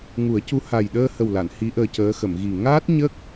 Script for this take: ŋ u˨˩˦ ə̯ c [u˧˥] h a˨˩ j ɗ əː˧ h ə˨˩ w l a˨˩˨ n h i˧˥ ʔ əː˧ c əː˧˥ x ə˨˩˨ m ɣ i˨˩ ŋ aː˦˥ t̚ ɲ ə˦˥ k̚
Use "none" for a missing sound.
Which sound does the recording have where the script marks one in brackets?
u˧˥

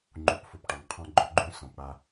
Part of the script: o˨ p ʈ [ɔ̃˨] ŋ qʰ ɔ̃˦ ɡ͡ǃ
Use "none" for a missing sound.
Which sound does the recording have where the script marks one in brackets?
ɔ˨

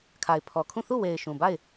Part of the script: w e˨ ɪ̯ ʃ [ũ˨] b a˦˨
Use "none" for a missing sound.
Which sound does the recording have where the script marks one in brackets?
ũ˨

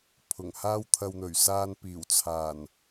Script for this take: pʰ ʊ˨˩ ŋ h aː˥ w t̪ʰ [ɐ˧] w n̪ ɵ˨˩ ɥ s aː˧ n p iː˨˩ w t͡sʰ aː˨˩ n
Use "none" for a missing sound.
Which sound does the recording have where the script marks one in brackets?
ɐ˧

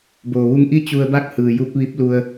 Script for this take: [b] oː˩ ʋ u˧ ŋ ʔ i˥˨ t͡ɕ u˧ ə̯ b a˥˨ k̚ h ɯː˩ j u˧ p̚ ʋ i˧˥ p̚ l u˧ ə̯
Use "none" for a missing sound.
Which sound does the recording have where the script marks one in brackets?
b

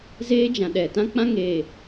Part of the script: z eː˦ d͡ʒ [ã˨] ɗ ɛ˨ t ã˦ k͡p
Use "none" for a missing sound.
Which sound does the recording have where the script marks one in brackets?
ã˨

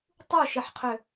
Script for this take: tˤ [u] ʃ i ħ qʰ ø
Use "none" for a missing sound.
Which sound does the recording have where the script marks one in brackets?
u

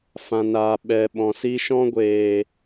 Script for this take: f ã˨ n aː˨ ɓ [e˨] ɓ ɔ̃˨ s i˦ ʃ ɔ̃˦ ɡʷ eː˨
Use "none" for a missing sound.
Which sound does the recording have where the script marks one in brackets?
ɛ˨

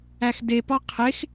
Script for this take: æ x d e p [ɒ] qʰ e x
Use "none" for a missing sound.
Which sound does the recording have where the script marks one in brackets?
ɒ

